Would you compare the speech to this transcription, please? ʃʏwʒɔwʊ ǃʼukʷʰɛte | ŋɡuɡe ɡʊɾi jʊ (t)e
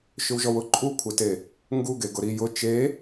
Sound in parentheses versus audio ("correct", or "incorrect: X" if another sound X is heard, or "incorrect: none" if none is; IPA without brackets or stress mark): incorrect: t͡ʃ